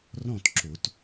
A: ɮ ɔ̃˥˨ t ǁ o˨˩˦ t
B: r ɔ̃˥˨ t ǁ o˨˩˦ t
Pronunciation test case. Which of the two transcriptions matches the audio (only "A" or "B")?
B